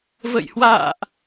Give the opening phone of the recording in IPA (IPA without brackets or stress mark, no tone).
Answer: v